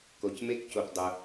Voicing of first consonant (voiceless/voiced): voiceless